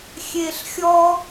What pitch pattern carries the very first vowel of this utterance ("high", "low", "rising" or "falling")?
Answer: low